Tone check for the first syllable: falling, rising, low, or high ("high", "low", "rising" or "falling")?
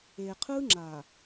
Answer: low